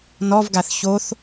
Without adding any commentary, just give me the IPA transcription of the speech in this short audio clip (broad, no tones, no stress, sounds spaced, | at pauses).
n ɔ v ɡ a θ ç o θ